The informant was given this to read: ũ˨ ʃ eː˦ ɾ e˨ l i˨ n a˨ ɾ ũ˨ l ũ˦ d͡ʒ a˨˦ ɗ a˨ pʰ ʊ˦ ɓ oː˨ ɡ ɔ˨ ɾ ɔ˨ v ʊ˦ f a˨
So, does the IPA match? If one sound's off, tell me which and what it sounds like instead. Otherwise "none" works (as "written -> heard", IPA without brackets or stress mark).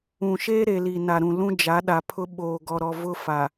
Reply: none